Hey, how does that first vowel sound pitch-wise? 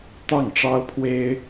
falling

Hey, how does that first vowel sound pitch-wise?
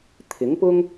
rising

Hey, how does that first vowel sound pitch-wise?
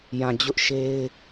low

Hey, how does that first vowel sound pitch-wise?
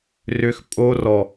low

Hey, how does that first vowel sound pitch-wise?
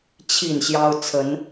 falling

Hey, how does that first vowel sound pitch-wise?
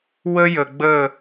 high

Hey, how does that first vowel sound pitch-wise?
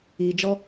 low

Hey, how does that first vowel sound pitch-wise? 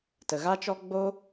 low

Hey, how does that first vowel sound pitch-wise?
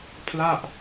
falling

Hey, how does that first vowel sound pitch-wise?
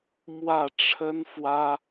falling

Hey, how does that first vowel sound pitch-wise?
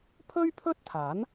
high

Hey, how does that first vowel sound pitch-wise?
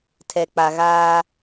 low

